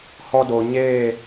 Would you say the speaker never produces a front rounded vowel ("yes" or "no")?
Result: yes